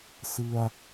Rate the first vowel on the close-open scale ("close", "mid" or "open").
close